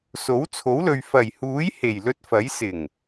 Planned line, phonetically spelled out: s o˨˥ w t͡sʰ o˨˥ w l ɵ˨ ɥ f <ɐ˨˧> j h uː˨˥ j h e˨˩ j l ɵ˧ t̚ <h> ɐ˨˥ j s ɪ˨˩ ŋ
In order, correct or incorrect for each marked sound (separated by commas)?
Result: incorrect, incorrect